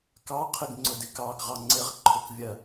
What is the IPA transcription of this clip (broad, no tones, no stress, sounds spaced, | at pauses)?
k ɑ qʰ ɪ ɡ ŋ͡ǀ ʊ d ɪ k ɑ ɡ ʁ ɑ ŋ͡ǀ ɪ ʁ ǃʰ ʊ k vʲ ɜ